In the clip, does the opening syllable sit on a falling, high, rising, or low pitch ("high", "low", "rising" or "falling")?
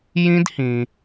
high